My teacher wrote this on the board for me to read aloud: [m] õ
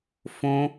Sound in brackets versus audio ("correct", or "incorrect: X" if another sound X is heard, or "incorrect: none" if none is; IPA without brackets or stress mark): incorrect: f